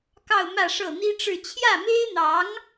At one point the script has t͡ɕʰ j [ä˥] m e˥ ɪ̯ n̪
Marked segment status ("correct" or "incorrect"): incorrect